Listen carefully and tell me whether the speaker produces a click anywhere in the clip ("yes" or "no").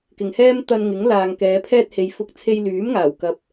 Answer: no